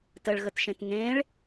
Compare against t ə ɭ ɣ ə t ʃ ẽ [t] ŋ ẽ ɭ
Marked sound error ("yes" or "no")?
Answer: no